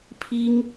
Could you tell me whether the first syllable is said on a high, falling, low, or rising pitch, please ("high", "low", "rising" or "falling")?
high